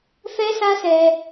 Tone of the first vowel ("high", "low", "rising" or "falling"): high